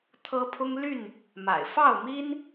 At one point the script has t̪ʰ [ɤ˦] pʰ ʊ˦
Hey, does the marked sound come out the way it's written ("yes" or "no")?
yes